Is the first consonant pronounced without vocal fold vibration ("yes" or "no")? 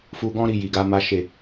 yes